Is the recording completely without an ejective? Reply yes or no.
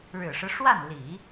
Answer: yes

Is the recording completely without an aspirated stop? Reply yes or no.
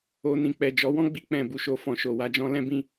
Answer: yes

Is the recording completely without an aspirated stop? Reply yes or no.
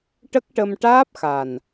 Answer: yes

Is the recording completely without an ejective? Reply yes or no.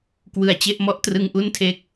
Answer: yes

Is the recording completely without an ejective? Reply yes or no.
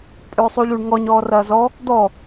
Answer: no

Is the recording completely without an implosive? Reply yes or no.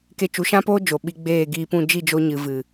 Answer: no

